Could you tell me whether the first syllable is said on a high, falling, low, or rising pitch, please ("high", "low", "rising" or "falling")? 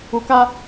low